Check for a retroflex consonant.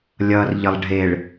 present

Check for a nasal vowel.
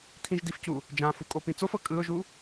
present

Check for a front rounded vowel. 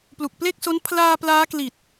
absent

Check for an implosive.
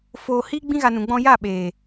present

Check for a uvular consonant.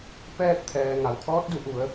absent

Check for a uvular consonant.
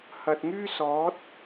absent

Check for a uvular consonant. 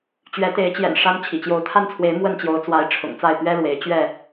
absent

